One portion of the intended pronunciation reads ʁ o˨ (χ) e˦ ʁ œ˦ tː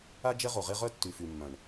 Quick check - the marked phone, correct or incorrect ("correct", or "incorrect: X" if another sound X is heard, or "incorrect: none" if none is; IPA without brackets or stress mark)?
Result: incorrect: ʁ